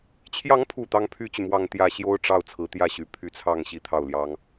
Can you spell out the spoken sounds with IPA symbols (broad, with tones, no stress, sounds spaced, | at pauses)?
t͡ɕʰ j ɑ˧˥ ŋ pʰ u˨˩ t̪ ɑ˥ ŋ pʰ y˥ t͡ɕ y˨ m w ɑ˥˧ ŋ t̪ j ä˥˩ ɕ j o˥ ʊ̯ ʈ͡ʂ ɑ˥˩ ʊ̯ t͡sʰ ɹ̩˧˥ t̪ j ä˥˩ ɕ y˧˥ pʰ y˧˥ t͡sʰ ɑ˥˩ ŋ ɕ i˥ t̪ʰ ɑ˥˩ ʊ̯ l j ɑ˥ ŋ